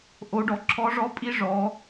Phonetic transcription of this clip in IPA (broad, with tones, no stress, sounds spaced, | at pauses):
ʔ o˩˧ ɖ ɔ˩˧ ǁʰ ɔ˧˥ ʐ ɔ˧˥ pʼ i˧˥ ʐ ɔ˩˧